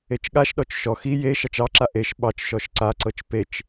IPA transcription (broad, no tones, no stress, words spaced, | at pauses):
et͡ʃɠaʃɗɔt͡ʃ ʃɔ xi je ʃɑt͡ʃɑǁa ʔeʃ ɓɑt͡ʃʃɔʃ ǀaǀɤt͡ʃ pet͡ʃ